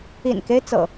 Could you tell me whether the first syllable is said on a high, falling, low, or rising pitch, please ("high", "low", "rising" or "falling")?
low